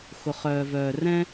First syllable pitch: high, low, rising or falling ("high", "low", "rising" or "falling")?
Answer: low